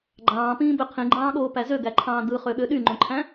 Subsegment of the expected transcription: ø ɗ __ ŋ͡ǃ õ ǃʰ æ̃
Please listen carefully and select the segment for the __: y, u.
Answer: y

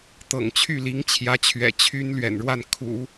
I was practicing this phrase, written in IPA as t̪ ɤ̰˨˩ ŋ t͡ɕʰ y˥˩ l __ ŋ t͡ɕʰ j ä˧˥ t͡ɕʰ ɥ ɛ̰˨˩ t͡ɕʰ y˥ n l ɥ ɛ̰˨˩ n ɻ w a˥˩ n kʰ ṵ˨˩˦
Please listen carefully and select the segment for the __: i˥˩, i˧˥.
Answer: i˧˥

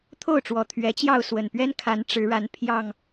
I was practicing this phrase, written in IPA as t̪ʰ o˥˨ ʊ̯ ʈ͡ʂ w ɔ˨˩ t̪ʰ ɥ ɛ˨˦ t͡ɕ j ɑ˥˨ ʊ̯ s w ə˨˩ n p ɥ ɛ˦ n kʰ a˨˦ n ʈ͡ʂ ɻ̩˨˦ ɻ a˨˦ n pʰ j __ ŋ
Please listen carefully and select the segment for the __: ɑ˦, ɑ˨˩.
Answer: ɑ˨˩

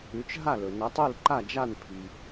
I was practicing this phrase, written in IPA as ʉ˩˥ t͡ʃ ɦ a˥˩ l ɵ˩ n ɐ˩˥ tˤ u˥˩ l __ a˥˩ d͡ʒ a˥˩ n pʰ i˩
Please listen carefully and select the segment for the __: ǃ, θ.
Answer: ǃ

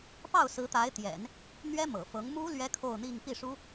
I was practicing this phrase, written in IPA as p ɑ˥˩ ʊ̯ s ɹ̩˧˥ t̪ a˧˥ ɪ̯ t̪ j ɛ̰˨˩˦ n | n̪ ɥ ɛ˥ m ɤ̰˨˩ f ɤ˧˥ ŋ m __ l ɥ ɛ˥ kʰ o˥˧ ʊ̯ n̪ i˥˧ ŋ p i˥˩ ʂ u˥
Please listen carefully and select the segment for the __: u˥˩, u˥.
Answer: u˥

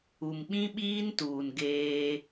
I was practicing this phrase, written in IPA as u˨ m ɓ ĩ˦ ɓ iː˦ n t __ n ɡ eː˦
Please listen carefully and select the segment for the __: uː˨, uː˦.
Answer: uː˨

